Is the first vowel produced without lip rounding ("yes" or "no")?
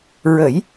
yes